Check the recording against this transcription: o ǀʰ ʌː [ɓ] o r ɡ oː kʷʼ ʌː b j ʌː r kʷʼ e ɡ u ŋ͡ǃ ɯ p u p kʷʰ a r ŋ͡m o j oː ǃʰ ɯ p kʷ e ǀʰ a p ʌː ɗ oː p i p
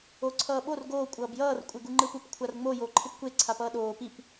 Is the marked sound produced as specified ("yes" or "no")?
yes